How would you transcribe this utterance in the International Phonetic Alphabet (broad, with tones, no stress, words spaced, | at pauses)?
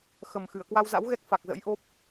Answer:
xə˨˩mxɨ˧˩ə̯ kwa˧wza̰˧˥wɣɛ˦˥k̚ fa˨˩k̚zə̰˧˥jʔo˦˥p̚